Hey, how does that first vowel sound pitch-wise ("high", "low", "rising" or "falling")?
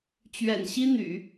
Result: low